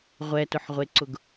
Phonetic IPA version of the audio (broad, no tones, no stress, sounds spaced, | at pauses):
ʁʷ ɛ t ʊ ħ ʁʷ e ǀ ʊ ɡ